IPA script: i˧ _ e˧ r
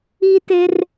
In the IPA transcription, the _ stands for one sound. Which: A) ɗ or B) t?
B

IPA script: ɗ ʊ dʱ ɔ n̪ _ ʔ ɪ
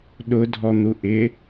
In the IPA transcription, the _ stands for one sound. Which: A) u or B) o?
A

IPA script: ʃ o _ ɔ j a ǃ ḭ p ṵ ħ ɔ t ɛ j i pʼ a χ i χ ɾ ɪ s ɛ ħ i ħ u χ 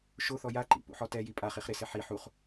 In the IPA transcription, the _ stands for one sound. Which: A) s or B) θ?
B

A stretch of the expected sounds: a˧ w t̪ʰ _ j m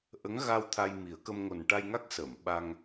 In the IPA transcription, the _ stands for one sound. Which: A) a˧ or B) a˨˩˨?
A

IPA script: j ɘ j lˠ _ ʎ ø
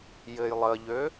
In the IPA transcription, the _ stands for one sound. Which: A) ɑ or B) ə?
B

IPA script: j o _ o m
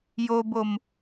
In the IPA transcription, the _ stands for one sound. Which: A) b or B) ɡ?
A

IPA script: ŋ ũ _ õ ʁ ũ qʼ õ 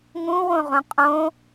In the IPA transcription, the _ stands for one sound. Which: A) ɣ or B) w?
B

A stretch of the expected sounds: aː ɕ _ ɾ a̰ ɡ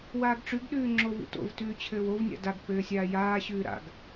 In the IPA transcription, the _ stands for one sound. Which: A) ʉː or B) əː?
A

